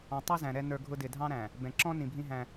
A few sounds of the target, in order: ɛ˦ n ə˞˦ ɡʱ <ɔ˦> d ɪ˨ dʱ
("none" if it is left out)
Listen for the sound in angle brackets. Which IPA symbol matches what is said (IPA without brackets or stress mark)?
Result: ʊ˦